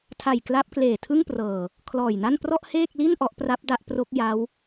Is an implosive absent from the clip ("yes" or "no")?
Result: yes